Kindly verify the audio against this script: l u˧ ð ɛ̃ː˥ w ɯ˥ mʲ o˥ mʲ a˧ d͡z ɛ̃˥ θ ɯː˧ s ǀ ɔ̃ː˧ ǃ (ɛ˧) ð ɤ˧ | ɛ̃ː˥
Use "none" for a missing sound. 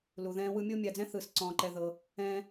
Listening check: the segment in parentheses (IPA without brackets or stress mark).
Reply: ɛ˧